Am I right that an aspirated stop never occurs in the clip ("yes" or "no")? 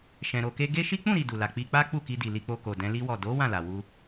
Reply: yes